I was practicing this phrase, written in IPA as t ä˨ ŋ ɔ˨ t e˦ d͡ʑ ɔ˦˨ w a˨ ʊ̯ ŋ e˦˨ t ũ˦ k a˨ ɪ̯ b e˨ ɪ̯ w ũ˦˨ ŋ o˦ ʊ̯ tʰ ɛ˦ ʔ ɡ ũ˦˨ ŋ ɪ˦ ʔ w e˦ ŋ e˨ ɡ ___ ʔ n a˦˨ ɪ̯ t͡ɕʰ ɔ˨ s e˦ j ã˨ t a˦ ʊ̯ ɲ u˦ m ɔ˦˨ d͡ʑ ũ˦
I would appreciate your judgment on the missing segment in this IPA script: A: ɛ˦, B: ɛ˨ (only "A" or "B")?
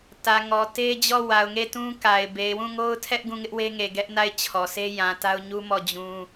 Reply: A